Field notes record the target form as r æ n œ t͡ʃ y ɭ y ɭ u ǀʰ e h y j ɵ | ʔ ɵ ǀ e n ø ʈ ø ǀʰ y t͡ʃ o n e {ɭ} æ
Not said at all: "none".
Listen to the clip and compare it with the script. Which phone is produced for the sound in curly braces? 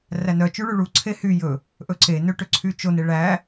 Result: ɭ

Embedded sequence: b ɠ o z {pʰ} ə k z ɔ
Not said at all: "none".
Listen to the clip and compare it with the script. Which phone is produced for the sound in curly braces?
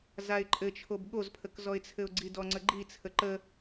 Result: pʰ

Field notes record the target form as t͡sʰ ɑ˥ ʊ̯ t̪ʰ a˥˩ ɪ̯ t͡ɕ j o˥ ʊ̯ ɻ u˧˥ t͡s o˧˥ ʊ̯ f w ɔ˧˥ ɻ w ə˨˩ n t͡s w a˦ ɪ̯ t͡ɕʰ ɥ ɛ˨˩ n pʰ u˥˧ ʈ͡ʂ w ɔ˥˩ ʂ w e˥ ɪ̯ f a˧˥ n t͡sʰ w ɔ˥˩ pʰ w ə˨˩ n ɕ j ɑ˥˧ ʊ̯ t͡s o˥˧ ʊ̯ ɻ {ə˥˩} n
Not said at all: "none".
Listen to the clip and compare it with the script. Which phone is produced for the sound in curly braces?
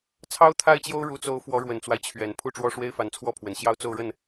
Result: ə˥˩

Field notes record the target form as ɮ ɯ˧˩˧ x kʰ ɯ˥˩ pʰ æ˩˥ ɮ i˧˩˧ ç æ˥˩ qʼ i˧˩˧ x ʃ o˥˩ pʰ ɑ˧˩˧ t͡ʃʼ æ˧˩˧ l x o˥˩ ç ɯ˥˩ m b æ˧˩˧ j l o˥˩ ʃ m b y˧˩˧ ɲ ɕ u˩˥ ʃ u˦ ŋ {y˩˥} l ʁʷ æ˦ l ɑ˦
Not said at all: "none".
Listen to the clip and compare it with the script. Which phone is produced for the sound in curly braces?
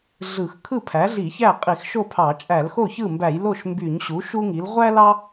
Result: i˩˥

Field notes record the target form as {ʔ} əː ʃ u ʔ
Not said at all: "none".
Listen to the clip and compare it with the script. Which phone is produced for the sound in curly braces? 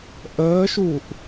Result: ʔ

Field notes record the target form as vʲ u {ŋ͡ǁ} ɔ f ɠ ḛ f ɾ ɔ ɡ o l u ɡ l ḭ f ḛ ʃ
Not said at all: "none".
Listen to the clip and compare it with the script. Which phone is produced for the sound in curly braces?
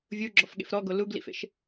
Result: ɡ͡ǁ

